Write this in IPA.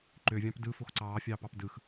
ǃ ø vʲ ɑ̃ p d ɯ f o x ǀ ɑː fʲ ɑː p ɑ p d ɯ x

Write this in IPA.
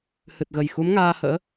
h ɨ˨˩ t̚ ɣ ə˨˩ j x u˨˦ m ŋ aː˧ h ə̰ː˧˥

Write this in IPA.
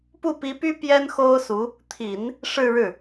p u˥˩ p i˧˥ p y˥ p j ɛ˥ n x o˥ ʊ̯ s u˧˥ | t̪ʰ i˨˩˦ n | ʂ ɻ̩˥˧ ɻ ɻ̩˥˩

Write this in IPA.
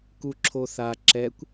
k u ǁʰ o θ a ǁ ɛ kʷ

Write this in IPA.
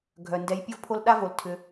ɡʱ œ˩ n d ɛ˨ j pʲ ʊ˥ v pʰ o˦ l ɗ a˥ v o˨ l tʰ ʏ˨

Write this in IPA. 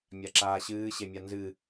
mʲ a ǁ aː ɕ ɨː ɕ e mʲ a n z ɨ

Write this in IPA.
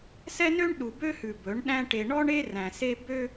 s ɛ˦ n ø˦ ɳ ɗ u˨ b ø˦ h ʉ˨ b ɵ˨˦ ɳ ɗ æ̃˦ ʈ e˨ ɳ ɔ˦ ɳ e˦ r æ̃˨ s e˦ b ø˦

